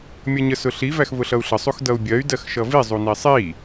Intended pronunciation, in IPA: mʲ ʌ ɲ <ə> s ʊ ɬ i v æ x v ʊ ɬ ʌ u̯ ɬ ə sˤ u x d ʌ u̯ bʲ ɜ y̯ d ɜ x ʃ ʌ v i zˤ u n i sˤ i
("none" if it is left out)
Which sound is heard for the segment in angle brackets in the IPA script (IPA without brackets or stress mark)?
ə